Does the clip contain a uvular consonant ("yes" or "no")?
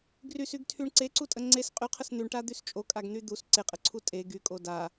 yes